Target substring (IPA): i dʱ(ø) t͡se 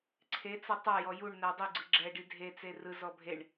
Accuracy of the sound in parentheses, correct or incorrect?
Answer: incorrect